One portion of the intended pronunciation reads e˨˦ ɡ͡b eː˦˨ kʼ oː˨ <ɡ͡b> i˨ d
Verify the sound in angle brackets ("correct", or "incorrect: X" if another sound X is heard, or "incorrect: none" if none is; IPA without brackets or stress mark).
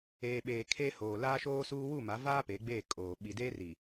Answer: incorrect: ɓ